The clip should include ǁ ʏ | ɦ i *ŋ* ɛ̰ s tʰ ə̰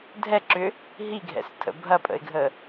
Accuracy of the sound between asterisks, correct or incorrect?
incorrect